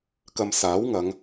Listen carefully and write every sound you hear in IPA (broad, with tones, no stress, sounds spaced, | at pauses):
k ɐ˧ m s aː˨˥ w ŋ ɐ˨˧ ŋ